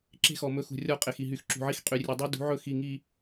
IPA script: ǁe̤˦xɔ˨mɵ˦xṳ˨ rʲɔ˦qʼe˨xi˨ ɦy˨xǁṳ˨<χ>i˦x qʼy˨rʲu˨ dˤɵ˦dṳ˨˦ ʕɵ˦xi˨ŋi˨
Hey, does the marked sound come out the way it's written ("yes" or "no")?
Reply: no